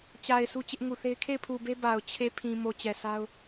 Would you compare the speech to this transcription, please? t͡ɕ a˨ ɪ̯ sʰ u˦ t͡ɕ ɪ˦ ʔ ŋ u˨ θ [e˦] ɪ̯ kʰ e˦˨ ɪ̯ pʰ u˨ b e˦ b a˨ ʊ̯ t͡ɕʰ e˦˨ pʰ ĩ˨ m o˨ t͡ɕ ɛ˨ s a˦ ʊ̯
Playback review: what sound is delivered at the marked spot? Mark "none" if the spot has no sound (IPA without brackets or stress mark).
e˦